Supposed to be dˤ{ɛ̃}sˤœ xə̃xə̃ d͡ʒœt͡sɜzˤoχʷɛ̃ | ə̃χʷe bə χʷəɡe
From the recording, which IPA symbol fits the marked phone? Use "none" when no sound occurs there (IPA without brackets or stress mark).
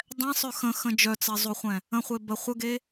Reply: ɛ̃